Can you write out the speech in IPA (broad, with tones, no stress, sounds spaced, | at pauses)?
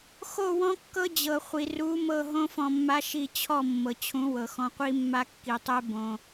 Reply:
x o˦˨ w ɔ̃˦ kː ɤ˦ d͡ʑ ɤ˨ χʷ i˨ r u˨˦ m ɤ˦˨ ɦ õ˦ f ɔ̃˧ mː a˦ ʃ i˧ t͡ɕʰ ɔ˦˨ mː ɤ˨ t͡ɕʰ ũ˨˦ w ɤ˨ x ɔ̃˧ qʷ i˦ mː a˦ kː i˨ tˤ e˦ b õ˧